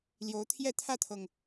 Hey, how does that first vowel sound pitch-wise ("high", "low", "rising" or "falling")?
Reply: rising